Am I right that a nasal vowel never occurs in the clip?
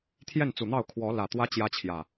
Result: yes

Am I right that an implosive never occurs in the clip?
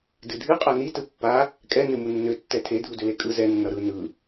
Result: yes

